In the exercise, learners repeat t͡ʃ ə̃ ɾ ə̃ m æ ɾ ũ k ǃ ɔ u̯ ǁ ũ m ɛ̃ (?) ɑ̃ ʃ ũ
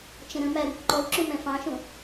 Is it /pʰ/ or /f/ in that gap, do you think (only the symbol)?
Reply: f